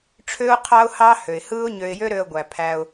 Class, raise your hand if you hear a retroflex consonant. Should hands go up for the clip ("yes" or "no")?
yes